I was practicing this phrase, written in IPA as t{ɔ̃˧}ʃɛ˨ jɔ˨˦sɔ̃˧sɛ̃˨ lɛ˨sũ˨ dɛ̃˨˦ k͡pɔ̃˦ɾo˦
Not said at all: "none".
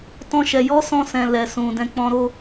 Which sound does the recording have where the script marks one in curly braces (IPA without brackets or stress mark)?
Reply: ɔ̃˧